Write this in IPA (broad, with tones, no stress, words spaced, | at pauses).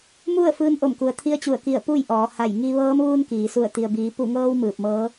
mu˥˨ə̯ fɯː˧nʔo˧˩mku˩ə̯ t̪ʰi˧˥ə̯t͡ɕu˧˩ə̯ki˧˩ə̯ pu˥˨jʔɔː˩˧ ha˧˩jŋi˧ ʋɤː˧˥m ʋuː˧nkiː˩su˧˩ə̯ t̪i˩ə̯biː˩˧ pu˧˩ŋɤː˧w mɯː˧˩p̚mɤː˧˥